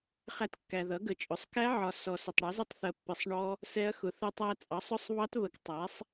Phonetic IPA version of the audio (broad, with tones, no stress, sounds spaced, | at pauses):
χ æ˦˥ t kː æ˨ ð ʌ˩˥ ɡ ə˨ t͡ʃʼ ʊ˩˥ sˤ k æ˦˥ ʕ ɒ˨ s ɔ˨ s ʊ˨ tˤ ɽ ɒ˩˥ z ʊ˦˥ tˤ θ ɜ˨ pː ɪ˨ sˤ ɳ ɔ˦˥ | s ɛ˦˥ ɐ̯ x ʊ˩˥ θ ə˦˥ tˤ æ˦˥ t͡sʼ ɑ˩˥ sˤ ʊ˦˥ sˤ β ɑ˦˥ t β ə˨ k tˤ æ˩˥ sˤ